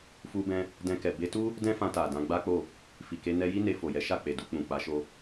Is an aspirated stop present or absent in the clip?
absent